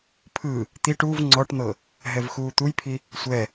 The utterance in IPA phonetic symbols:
pʰɯ | t̪iʈ uv ŋ͡ǀɔʈn̪ɤ | ɦɛvxuːt̪ujpʰi | sʷɛ

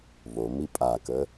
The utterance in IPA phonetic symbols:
βomi pʼakə

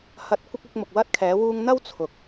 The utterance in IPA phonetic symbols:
hɐ˨˥t̚ kʷɪ˥k̚ʊ˨˥k̚mʊ˨k̚ wɐ˥t̚kʰɛː˨˥ wuː˧ŋn̪ɐ˥w t͡sʰʊ˨k̚

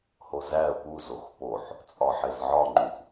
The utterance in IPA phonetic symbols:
hozæə̯ puzox poħ | t͡sʼɒħezʕɒŋ͡ǃux

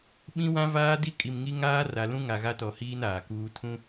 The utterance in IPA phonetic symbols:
ɓĩ˦wã˦vaː˦di˦ kʼi˨mŋi˦ ŋaː˦ra˨lũ˦ ŋa˨ɣa˦tɔ˨hiː˦n aː˨kuː˦ tʰũ˦

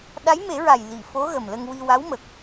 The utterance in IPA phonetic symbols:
ɗa˧˥jme˨˩˦ɹa˨˩j li˨˩˨fo˧˥ ɣə˨˩mlə˧ŋ wi˧wa˧˥wmə˨˩k̚

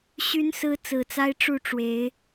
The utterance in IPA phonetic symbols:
ɕy˨˦nsɹ̩˨˦ t͡sɹ̩˨˩t͡sa˦ɪ̯ ʈ͡ʂu˥˨ʈ͡ʂwe˨˦ɪ̯

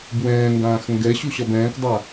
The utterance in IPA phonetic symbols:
bwɛ̃ːŋɡãːx ŋɡɛɕu ɕɒbɛ̃ːkdˤa

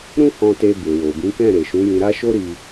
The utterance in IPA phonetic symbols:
ɾũ˦hɔ̃˧te˧ be˨wo˨bĩ˨˦kɛ̃˦˨ ɾe˨ʃũ˨˦jĩ˧ ɾa˦ʃo˦ ɾi˧

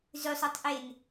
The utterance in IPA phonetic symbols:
zʉsˤutˤʔen

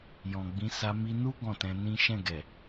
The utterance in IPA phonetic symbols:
jɔ̃˨ɡ͡bĩ˨˦ sa˧mi˧nu˦ ɡɔ̃˦˨tɛ̃˧nĩ˦ ʃɛ̃˦˨ɡɛ˨

